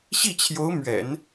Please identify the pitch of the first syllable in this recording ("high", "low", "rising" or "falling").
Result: falling